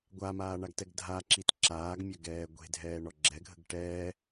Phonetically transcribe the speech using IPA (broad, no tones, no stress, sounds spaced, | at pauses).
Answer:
ɡʷ a m aː ɳ a ɡ t ɛ ɡ dʱ a ǁ i t ǁ aː ɡ mʲ ɐ ɡ ɛː ɡʷ e̤ dʱ ɛː ɳ ɔ ɡ͡ǁ ɛ ɡʱ ə̤ ɡ ʈ ɛː